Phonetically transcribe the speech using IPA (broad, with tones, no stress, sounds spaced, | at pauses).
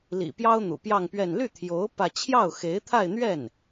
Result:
l ḭ˨˩ p j ɑ˥ ʊ̯ n̪ ṵ˨˩ p j ɑ˥˧ ŋ p ɥ ɛ˥˧ n l y˥˩ t̪ʰ j o˧˥ ʊ̯ p ä˥˧ t͡ɕʰ j ɑ˥˩ ʊ̯ x e˧˥ ɪ̯ t̪ʰ a˥˧ ɪ̯ n̪ ɥ ɛ˥˩ n